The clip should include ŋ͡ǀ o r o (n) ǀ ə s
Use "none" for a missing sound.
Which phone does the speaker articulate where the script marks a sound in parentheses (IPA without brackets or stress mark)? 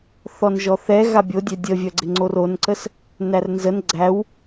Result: n